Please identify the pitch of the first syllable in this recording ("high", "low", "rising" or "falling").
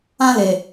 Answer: high